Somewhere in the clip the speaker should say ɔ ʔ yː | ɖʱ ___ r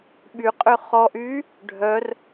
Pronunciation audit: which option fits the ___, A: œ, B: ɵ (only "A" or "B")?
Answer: A